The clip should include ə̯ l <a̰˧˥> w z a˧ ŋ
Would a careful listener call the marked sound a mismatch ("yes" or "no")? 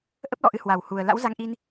no